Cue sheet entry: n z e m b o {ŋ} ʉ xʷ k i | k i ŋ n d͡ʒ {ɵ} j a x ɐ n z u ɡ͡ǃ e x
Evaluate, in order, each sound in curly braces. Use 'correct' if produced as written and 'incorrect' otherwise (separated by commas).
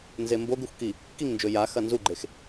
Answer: incorrect, correct